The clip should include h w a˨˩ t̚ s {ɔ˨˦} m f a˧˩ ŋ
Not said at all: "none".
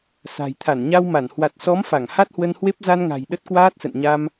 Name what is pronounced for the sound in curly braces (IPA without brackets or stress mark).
ɔ˨˦